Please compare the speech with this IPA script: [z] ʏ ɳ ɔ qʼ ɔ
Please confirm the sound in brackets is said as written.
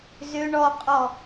yes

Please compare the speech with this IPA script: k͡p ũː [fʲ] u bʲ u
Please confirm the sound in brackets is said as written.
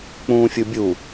yes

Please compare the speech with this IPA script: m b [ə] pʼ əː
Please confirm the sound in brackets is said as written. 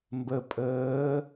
yes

